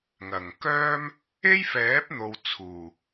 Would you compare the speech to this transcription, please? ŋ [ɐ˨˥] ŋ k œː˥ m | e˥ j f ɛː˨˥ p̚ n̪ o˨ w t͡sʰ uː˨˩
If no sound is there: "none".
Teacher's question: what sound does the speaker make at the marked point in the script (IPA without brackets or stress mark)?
ɐ˨˩